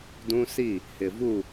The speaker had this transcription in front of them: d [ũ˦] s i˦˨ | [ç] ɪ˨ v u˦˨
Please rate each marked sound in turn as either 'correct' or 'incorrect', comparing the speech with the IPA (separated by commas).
correct, incorrect